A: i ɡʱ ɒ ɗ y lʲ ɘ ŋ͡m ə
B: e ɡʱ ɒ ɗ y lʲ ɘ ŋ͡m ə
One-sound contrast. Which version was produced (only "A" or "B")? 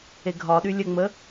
B